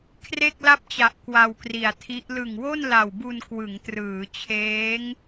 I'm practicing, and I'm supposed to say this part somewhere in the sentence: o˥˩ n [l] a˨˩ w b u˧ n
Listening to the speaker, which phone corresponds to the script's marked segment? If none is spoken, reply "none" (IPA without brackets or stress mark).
l